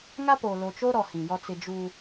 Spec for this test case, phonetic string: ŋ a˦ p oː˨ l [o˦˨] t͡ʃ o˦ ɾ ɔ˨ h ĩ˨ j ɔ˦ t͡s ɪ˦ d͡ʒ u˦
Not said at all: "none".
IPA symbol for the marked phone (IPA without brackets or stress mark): o˨